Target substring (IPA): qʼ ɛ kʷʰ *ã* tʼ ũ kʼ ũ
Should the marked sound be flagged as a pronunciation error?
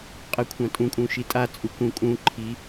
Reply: no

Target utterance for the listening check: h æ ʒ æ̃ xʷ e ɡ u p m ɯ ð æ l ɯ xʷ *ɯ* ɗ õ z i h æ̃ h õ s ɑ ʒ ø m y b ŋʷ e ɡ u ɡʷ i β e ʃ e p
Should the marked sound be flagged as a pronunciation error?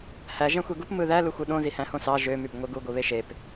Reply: no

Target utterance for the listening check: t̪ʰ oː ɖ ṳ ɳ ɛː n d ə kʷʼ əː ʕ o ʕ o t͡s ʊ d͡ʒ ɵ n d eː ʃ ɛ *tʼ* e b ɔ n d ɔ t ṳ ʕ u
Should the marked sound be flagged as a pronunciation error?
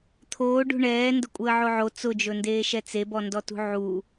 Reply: yes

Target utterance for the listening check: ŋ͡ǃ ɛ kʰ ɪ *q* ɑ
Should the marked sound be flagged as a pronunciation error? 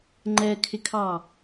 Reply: yes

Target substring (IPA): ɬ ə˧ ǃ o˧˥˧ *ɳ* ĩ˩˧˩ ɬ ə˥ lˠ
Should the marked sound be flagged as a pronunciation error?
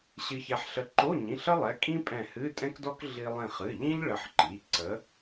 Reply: yes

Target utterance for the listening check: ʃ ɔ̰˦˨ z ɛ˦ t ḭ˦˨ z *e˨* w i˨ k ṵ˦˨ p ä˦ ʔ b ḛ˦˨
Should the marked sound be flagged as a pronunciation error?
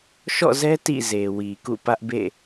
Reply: no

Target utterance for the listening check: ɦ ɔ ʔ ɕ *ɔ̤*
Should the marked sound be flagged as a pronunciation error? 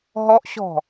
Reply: no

